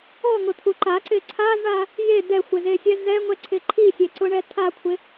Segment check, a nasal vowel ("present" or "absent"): absent